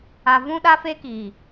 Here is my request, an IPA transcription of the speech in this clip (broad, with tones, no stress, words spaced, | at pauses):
a˨vũ˦ ɗa˦ fe˦kiː˨